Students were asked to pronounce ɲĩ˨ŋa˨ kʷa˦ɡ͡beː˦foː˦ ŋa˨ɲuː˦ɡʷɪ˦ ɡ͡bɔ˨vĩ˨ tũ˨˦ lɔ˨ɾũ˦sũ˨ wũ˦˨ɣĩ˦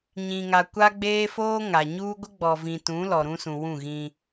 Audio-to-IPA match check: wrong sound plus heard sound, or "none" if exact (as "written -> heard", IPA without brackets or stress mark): none